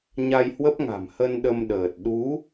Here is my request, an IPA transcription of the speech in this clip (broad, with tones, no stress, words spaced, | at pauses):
ɲa˧jhwə˦˥p̚ŋa̤˨˩mhə˧n ɗə˧m ɗəː˨˩t̚ ɗu˨˦